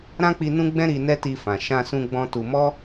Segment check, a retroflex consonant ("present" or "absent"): absent